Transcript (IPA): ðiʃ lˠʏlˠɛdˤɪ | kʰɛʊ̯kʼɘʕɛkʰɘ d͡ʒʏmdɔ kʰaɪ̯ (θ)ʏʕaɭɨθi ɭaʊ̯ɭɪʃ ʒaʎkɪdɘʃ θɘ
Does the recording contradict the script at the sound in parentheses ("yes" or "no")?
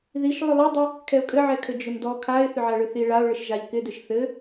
no